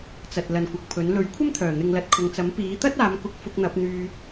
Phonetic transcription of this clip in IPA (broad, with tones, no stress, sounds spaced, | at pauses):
t͡s ɐ˨ t̚ l ɐ˨˧ n kʷ ɐ˨ k̚ pʰ ɵ˨˥ n l ɵ˨˥ ɥ kʷʰ ɐ˥ m t̪ʰ œː˨˩ n̪ ɪ˨ ŋ l ɐ˧ t̚ kʰ ʊ˨ ŋ t͡s ɐ˨˥ m p iː˨˥ t̪ ɐ˥ t̚ aː˨˧ m k ʊ˨˥ k̚ f ʊ˧ k̚ n̪ ɐ˨˥ p̚ n̪ yː˧